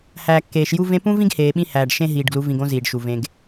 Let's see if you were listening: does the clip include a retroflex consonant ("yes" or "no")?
yes